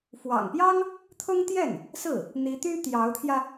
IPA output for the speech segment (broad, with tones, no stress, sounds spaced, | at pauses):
f w ɑ̰˨˩ ŋ p j ɑ˥ ŋ | t̪ʰ ʊ˥ ŋ t̪ j ɛ˥˩ n | s ɹ̩˥˩ | n̪ i˧˥ t̪ y˥ t̪ j ɑ˧˥ ʊ̯ t̪ʰ j ä˧